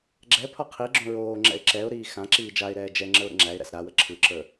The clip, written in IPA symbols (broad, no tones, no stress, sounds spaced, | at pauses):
ɡ͡ǁ ɛ pʰ ɒ qʰ i ɡ͡ǁ õ ɹ oː ŋ͡ǁ ɛ̰ ɪ̯ ǁ ɛ ʊ̯ ɾ iː x ã ǁ iː d͡ʒ a ɪ̯ ɾ ɛː d͡ʒ ɛ ŋ͡ǁ ə ʊ̯ ɾ ə̰ ŋ͡ǁ æ ɪ̯ ɾ æ̰ s ɾ a w ə ǁʰ ɯ ǁ ə˞